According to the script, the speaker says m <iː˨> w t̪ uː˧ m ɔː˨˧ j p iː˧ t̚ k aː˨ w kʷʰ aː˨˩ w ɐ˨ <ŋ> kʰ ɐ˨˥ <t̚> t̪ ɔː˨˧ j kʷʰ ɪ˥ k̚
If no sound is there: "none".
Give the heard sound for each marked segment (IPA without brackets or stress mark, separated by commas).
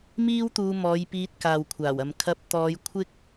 iː˥, m, p̚